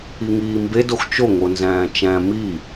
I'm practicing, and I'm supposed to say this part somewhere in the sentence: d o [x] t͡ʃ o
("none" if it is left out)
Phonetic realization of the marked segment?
x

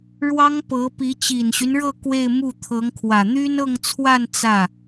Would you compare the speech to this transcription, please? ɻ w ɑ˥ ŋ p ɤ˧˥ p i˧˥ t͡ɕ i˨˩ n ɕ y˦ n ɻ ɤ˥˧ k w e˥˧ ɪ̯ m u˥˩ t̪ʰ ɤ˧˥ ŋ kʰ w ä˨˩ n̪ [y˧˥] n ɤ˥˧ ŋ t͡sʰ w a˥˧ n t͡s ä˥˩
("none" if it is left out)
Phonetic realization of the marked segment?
y˥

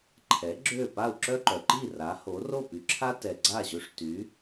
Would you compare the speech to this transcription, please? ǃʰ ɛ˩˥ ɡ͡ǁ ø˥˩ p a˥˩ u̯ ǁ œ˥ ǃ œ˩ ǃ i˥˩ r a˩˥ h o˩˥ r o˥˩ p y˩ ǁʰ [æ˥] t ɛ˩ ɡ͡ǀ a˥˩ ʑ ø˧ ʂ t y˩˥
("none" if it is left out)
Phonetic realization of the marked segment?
a˥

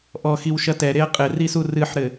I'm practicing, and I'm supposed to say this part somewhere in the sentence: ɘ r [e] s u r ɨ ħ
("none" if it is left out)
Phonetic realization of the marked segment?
i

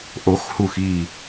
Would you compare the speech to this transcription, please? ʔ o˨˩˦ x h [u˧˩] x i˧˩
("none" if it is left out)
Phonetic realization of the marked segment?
u˧˩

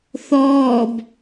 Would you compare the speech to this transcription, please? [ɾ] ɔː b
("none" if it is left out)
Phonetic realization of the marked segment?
θ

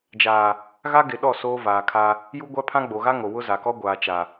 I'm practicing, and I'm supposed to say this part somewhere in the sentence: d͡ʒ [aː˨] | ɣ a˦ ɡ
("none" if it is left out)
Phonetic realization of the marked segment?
aː˨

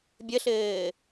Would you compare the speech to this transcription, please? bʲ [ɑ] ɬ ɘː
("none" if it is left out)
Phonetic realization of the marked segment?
ə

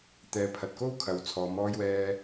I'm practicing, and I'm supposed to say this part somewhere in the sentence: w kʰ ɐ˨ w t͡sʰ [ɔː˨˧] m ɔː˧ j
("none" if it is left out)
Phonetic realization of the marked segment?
ɔː˨˧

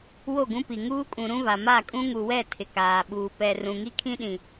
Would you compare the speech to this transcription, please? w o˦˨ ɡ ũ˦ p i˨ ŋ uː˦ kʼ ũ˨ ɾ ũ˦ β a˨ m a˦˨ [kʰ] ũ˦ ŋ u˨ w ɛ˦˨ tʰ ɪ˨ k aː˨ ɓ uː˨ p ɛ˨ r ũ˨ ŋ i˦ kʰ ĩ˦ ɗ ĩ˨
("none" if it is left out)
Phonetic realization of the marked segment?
kʼ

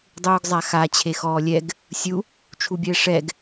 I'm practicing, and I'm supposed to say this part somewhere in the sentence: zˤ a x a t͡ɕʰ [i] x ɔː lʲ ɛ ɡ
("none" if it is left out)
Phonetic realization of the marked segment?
e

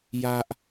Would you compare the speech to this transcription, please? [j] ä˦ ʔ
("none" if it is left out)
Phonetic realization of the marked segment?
j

